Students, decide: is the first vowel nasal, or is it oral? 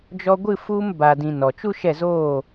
oral